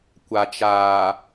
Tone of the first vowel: low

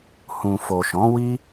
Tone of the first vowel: low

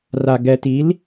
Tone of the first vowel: low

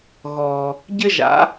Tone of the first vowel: low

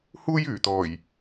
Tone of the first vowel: high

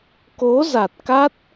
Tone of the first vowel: rising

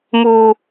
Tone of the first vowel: high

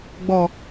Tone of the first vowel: low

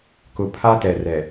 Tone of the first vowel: low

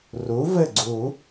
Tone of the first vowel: rising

